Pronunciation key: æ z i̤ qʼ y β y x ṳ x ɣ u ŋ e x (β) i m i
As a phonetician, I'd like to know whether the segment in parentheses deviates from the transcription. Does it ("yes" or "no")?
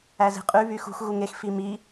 yes